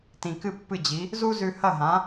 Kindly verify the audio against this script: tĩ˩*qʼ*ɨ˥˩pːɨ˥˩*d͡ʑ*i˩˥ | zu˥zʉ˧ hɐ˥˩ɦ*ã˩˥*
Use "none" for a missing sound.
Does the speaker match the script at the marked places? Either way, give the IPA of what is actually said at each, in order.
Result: k, d͡ʑ, ã˩˥

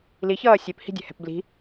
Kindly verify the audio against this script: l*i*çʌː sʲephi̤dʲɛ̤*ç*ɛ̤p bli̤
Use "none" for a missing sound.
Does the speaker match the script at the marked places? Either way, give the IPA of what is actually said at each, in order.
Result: i, h

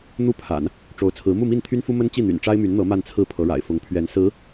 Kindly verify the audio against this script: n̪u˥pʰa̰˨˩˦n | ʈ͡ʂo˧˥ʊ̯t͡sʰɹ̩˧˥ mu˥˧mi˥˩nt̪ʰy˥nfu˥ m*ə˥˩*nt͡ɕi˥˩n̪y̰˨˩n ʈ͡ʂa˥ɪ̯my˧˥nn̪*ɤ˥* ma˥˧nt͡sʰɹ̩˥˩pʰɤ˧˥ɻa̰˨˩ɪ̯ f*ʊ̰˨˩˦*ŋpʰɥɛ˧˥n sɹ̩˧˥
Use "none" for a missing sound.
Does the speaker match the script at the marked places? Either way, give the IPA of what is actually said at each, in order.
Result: ə˥, ɤ˧˥, ʊ˧˥

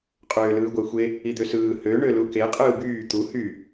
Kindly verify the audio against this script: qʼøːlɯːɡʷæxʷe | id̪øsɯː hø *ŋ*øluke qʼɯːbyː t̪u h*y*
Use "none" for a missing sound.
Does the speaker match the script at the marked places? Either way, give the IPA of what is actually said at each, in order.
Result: ɳ, y

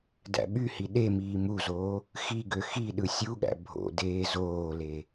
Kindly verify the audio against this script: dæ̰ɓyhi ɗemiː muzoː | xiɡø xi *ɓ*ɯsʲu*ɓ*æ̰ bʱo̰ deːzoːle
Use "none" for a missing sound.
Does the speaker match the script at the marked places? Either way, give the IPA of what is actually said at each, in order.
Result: ɗ, ɠ

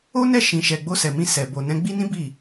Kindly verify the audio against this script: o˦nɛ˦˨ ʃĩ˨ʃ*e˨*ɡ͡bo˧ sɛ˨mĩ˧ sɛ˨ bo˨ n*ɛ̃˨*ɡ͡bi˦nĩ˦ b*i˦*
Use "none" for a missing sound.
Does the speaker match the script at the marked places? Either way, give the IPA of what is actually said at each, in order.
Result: ɛ˨, ɛ̃˨˦, i˦˨

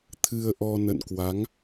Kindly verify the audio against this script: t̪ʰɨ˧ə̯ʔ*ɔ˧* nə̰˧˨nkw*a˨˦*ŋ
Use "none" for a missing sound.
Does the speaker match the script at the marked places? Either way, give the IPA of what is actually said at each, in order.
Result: ɔ˧, a˨˦

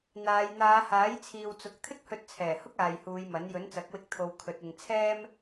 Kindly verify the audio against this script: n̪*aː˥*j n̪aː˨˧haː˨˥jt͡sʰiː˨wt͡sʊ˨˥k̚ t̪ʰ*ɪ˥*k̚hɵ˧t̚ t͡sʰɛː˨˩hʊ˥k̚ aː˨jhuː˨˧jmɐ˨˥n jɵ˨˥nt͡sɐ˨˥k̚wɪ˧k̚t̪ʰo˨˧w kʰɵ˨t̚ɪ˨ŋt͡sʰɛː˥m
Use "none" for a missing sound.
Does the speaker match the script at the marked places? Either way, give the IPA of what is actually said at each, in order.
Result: aː˨˧, ɪ˥

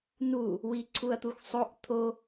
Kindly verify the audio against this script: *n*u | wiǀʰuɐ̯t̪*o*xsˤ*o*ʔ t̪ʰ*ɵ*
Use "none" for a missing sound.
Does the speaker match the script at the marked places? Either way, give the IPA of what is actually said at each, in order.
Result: n, u, o, o

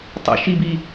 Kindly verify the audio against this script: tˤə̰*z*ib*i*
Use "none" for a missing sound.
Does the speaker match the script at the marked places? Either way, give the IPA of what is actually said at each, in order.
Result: ʃ, i

